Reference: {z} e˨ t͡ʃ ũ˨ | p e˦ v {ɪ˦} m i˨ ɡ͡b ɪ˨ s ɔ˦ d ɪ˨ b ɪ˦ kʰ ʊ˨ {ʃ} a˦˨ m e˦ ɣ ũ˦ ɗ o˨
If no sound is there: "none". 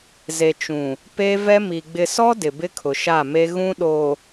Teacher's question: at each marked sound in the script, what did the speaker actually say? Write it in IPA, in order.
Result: z, ɛ˦, ʃ

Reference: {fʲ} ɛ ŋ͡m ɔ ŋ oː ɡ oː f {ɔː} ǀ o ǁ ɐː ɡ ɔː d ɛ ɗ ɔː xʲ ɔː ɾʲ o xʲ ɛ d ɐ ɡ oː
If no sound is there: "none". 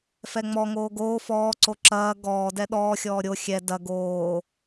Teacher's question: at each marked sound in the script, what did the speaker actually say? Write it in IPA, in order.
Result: f, ɔː

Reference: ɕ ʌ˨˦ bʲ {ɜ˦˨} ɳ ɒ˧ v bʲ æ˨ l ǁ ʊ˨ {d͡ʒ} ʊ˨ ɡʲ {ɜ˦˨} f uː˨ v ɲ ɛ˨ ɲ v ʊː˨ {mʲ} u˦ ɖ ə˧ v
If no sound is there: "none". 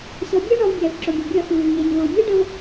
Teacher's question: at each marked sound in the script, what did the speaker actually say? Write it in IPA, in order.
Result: ɜ˦, ɡʲ, ɜ˦˨, mʲ

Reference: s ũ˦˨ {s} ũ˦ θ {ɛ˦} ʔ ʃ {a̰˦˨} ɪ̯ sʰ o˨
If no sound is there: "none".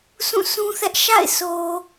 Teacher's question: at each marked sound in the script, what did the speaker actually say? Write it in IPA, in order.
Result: s, ɛ˦, a̰˦˨

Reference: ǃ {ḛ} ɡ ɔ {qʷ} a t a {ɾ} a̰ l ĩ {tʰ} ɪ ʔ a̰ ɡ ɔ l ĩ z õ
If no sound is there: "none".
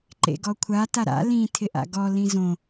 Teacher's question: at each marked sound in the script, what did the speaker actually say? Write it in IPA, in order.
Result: ḛ, kʷʰ, ɾ, tʰ

